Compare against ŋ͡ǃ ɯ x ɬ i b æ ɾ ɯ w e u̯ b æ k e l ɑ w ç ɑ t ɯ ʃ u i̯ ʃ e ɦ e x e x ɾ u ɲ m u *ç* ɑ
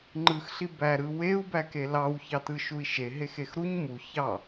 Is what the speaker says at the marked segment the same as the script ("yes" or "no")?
yes